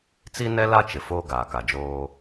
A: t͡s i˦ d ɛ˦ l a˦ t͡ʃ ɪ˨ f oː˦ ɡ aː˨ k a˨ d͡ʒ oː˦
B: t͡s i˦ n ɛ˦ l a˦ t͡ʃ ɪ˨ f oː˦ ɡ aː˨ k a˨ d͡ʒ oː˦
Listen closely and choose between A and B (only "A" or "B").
B